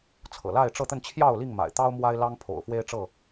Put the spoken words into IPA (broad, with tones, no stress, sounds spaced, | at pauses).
t͡sʰ ɤ̰˨˩ l a˥˨ ɪ̯ ʈ͡ʂ ɤ˥˨ t̪ ə˥˨ n t͡ɕʰ j ɑ˥˨ ʊ̯ l i˥˨ ŋ m a̰˨˩ ɪ̯ t̪ ɑ˦ ʊ̯ m w a˦ ɪ̯ l ɑ˦ ŋ pʰ o̰˨˩ ʊ̯ f w e˦ ɪ̯ ʈ͡ʂ ɤ˥˨